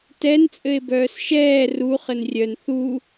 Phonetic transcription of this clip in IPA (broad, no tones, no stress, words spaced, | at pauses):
tɛn t͡sʼɘe̯bœːsʃɛː ru χɘnrʲœn θu